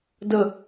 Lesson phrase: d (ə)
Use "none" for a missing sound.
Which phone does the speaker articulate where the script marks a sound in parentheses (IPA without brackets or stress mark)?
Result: ə